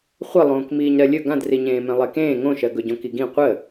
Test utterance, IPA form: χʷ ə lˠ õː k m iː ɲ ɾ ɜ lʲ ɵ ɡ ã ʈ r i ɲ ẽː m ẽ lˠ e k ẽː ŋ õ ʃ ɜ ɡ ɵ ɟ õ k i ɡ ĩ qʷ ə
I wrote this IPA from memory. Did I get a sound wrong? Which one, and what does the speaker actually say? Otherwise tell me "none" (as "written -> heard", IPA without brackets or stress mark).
ʈ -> d